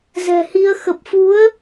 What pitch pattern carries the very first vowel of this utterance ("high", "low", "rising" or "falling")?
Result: low